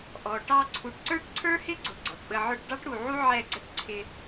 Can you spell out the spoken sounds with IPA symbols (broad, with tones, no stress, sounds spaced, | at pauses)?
ʔ ɔ˨ ʈ ɑ˧ ǀʰ u˨ ʈ ǀ ə˞˦ ʈ ǀʰ ə˞˦ h ɪ˦ ɡ͡ǀ ʊ˨ ɡ͡ǀ ɑ˨ ʈ ɓ ə˧ ʕ ʊ˦ ʈ ɖ ɑ˦ ʈ ɽ u˨ ʕ u˦ ʕ ɛ˦˨ ɡ͡ǀ ə˦ ʈ ǀʰ ɪ˧